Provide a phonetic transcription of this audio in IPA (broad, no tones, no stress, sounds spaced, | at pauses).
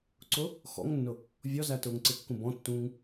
ǀ ʊ | x ɔ̰ ŋ nː ʊ | vʲ ɔ z æ t ʊː ŋ ǀ ɪ kː ũ b ɔ̃ tː ũː ŋ